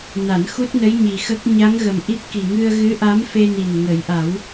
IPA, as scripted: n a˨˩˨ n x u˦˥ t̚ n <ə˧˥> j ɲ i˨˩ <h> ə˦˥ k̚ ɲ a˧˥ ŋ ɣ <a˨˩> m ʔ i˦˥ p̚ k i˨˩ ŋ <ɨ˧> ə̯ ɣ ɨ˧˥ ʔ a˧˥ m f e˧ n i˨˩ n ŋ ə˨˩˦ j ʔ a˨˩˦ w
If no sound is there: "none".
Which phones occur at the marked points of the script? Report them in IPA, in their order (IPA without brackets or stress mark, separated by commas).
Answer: ə˧˥, x, ə˨˩, ɨ˧